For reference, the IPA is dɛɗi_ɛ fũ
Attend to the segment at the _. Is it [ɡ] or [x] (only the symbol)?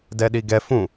ɡ